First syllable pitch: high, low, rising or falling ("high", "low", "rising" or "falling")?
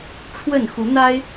falling